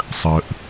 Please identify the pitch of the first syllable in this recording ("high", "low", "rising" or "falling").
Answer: low